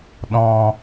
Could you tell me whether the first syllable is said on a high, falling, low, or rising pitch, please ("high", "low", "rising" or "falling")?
low